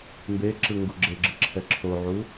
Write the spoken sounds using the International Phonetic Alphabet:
m b e ǁ ɯ ŋ ɡ u ɡ͡ǁ e ɡ͡ǁ ɯ ǁʰ ɛ ǁʰ o ʕ u

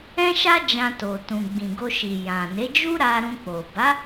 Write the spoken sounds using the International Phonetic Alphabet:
ɛ̃˦ ʃ a˦ d͡ʒ ã˧ t o˨ t ũ˨ ɡ͡b ĩ˨ ɡ o˧ ʃ i˨ j ã˨ n e˨˦ d͡ʒ u˦ ɾ a˧ ɾ ũ˧ k͡p o˨ b a˨˦

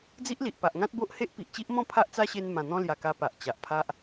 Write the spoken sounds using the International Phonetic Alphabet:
d͡z i˦ ʔ l i˨ ʔ p a˨ ʔ ŋ ã˦ t̚ b o˦ ʔ h e˦ ʔ p i˨ ʔ t͡ɕ i˦ ʔ m ɔ̃˥˧ pʰ a˦ ʔ t͡s a˦ ɕ e˧ n m ã˨˩ n̪ ɔ̃˧ l j a˨˩ k a˧ p a˨ ʔ t͡ɕ a˨ ʔ pʰ a˦ ʔ

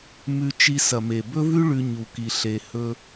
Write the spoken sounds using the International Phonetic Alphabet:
m ʉ˧ t͡ʃ i˧ s ɐ˨ m e˨ b ɵ˦ v ʉ˦ ɭ ʉ˧ ɲ u˧ k i˧ ɬ e˧ h ɵ˧

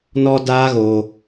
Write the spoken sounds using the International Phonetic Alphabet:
n ɔ˦ d aː˦ ɣ oː˧

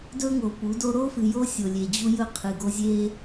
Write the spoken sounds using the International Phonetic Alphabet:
d ɵ˦ ŋ o˨ p u˨˦ d o˦ ɾ o˦ f ɨ˨ j o˦ sʲ o˨ lʲ e˨ d͡ʑ u˦ j ɵ˦ qʰ ɨ˨ ɡ o˦ zʲ e˦

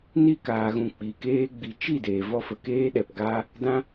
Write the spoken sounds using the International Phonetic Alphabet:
n i˦ k aː˨ ɣ ũ˨ k͡p i˨ k eː˦ ɡ͡b i˨ t͡ʃ i˦˨ d eː˨ v ɔ˦ f ə˨ k eː˦ ɗ ɛ˨ p ɡ aː˦ | d ã˦

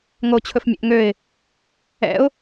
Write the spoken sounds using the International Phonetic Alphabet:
ŋ o t͡ɕʰ ɵ f mʲ ɛ̰ ʔ ŋ ø ɪ̯ | ɛ̰ ʊ̯

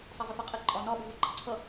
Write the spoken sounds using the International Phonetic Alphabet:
sˤ ɑ v ɪ f æ qʼ ɪ ǃʼ ɒ n ɒ ɓ ʊ v ʊ ǃ ə ǀʰ ʌ

